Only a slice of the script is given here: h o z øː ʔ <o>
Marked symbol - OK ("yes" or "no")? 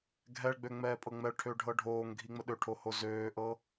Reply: no